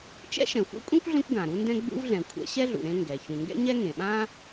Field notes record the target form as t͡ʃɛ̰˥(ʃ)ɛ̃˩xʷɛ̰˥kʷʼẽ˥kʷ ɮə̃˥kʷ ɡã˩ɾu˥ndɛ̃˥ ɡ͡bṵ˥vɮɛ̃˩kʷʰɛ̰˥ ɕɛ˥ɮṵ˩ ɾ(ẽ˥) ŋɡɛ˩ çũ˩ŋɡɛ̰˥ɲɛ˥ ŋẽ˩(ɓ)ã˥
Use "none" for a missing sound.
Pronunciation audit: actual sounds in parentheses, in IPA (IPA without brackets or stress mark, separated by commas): ʃ, ẽ˥, ɓ